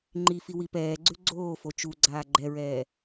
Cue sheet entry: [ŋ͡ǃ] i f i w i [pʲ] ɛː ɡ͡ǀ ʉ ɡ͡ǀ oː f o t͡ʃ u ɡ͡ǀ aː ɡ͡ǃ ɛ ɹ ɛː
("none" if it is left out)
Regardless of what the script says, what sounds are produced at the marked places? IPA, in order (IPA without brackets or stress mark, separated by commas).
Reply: ŋ͡ǃ, p